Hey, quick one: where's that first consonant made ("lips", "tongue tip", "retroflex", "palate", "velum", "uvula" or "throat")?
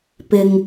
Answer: lips